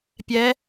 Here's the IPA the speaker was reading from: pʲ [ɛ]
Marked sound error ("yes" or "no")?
no